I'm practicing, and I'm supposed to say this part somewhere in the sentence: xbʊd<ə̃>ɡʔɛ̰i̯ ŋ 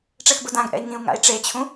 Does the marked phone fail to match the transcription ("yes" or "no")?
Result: yes